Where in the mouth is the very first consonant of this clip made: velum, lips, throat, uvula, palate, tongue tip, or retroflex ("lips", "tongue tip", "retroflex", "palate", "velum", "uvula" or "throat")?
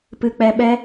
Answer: lips